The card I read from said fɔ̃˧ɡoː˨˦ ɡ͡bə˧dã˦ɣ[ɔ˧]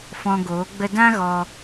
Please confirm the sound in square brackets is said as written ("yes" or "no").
yes